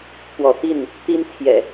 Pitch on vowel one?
rising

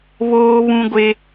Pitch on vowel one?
high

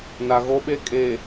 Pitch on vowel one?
low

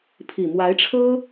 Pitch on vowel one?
low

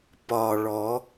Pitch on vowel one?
low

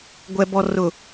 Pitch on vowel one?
low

